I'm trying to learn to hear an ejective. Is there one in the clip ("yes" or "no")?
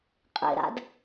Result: yes